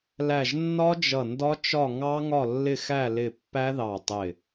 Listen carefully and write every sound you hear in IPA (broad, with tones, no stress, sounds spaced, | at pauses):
l æ˧˩ ʒ nː ɒ˦˥ d͡ʒ ʌ˧˩ n d ɒ˦˥ t͡ʃ ɒ˥˨ ŋ ɑ˦˥ ŋ ɒ˥˨ lː ɪ˥˨ x æ˥˨ l ɪ˧˩ pː æ˦˥ ð ɑ˧˩ tˤ ɪ˧˩